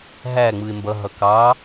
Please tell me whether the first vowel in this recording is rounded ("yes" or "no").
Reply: no